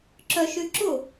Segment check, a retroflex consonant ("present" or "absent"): absent